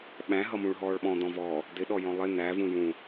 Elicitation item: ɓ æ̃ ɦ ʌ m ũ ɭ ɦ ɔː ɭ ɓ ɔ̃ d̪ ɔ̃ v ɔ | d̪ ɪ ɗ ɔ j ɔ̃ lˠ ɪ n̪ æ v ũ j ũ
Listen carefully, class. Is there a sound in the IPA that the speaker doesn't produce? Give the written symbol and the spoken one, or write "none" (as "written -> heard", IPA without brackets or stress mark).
none